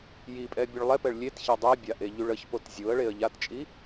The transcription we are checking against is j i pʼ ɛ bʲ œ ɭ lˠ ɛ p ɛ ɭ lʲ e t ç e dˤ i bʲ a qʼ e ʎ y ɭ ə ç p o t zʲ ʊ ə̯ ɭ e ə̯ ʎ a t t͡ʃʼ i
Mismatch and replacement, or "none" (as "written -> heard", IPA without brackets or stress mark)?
qʼ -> ʔ